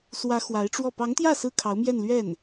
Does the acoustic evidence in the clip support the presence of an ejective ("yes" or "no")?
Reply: no